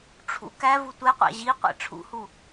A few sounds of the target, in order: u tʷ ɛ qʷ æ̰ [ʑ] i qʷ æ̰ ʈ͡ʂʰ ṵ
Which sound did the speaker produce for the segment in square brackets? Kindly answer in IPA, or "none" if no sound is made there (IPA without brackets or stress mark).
ʑ